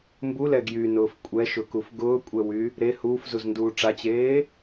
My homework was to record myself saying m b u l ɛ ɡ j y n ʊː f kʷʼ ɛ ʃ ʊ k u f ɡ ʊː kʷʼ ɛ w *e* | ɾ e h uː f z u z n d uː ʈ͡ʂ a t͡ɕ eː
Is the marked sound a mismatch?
yes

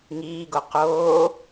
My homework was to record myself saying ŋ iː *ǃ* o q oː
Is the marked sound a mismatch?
yes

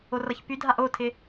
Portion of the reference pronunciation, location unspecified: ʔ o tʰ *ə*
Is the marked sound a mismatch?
yes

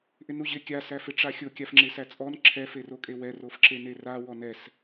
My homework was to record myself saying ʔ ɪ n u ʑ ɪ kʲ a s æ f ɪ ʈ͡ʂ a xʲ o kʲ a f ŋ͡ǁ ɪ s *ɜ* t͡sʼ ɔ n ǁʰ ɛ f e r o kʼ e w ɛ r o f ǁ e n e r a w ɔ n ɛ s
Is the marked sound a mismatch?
yes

